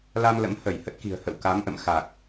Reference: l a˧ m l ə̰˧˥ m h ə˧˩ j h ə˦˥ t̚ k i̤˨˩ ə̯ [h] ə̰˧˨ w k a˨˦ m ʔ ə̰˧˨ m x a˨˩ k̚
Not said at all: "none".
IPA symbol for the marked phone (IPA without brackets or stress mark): h